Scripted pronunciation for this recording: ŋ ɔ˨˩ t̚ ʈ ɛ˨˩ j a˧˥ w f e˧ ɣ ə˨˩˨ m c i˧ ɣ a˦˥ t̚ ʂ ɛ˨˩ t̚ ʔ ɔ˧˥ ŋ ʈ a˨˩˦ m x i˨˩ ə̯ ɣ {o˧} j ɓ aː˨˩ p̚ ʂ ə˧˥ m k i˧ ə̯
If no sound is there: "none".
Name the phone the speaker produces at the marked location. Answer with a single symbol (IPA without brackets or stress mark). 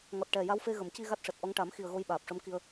o˧